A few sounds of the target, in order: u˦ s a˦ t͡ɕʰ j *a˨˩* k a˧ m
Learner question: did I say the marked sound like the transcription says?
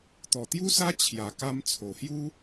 yes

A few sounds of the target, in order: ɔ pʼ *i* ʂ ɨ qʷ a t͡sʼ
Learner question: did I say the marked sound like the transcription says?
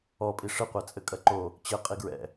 yes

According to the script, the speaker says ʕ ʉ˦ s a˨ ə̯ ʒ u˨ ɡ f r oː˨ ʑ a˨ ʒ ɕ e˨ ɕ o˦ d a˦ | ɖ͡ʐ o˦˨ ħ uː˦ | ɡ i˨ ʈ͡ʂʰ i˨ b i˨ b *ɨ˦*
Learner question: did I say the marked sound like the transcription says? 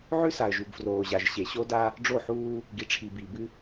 yes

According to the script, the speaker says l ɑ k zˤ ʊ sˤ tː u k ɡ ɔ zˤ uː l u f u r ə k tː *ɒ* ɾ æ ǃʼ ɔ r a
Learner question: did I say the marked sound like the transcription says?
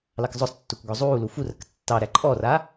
no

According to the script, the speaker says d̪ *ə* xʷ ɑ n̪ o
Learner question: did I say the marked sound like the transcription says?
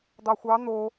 no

